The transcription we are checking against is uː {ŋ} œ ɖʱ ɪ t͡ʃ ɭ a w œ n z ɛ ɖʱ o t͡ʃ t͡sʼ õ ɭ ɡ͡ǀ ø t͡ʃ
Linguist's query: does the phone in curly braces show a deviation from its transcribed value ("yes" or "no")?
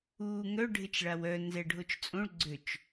no